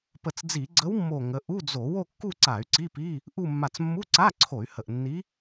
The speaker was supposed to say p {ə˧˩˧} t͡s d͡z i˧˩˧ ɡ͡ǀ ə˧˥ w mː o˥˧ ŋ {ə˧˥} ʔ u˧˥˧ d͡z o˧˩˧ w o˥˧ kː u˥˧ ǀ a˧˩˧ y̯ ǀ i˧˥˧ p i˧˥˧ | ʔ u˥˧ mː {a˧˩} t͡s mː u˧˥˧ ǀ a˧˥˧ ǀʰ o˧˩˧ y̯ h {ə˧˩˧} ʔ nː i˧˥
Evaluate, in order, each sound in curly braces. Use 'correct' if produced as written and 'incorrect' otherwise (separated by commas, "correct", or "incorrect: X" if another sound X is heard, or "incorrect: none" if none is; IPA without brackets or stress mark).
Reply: incorrect: ə˧˩, correct, correct, incorrect: ə˧˩